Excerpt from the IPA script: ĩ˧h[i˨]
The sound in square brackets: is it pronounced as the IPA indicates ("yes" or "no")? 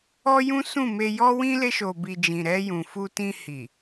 yes